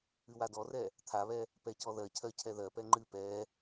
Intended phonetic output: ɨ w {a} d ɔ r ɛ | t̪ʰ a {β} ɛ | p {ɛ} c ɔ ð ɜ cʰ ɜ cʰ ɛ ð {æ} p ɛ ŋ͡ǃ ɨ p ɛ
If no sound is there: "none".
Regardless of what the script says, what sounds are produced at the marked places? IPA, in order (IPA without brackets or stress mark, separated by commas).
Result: a, β, ɛ, ɜ